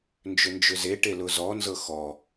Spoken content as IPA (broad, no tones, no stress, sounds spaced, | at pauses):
n d͡ʒ ʏ n d͡ʒ ʏ z e ʈ e l ʊ z ɔ n z ɤ x ɔ